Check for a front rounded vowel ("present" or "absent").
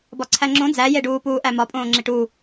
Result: absent